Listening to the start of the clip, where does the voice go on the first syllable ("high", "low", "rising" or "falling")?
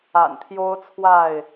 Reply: low